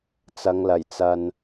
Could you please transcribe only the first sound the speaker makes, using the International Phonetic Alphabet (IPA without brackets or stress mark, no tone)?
t͡s